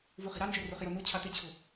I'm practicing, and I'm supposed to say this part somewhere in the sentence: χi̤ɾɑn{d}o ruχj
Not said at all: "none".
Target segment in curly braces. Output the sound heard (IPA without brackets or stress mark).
d͡ʒ